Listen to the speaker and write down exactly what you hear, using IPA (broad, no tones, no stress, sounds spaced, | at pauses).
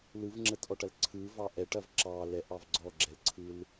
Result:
l ɯ v ŋ͡ǁ ə t ʔ ɔ ʈ ɐ l ǀʰ ɯ v ɑ ʔ ɛ ʈ ɐ v ǁ ɑ l ɛ ʔ ɑ v ɡ͡ǀ ɔ ɡ͡ǁ ɛ l ǀʰ ɯ l